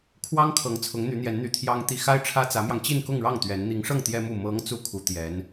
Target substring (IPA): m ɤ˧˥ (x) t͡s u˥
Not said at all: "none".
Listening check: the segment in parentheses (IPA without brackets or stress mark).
ŋ